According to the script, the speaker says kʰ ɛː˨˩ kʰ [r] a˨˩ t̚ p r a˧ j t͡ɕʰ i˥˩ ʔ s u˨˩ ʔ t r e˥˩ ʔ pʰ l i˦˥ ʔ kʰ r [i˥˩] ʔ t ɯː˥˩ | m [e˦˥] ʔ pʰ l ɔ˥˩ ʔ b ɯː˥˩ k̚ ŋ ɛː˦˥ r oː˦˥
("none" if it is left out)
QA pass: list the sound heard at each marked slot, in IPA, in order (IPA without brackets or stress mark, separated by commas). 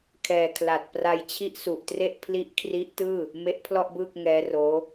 l, i˦˥, e˦˥